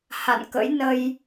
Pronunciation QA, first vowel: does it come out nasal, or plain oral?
oral